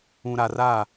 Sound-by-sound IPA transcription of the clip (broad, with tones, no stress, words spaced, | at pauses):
ũ˨ɾa˨ra˦˨